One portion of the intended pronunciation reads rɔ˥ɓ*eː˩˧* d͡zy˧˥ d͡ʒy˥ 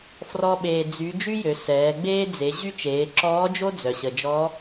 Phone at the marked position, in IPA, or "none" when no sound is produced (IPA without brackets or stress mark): eː˧